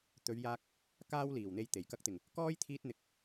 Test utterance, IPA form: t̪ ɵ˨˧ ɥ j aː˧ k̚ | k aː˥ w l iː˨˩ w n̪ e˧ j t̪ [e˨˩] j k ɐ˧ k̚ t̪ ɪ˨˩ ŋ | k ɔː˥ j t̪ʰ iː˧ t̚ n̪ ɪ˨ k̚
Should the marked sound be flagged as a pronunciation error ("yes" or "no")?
no